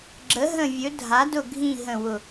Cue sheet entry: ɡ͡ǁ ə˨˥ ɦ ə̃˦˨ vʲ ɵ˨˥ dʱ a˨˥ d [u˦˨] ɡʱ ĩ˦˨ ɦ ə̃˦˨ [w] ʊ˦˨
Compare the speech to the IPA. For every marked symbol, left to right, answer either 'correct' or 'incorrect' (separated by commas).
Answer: incorrect, correct